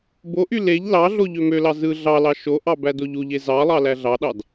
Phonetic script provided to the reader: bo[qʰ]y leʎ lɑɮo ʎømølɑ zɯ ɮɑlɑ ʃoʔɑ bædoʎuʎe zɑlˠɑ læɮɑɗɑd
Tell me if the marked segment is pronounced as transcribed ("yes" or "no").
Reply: no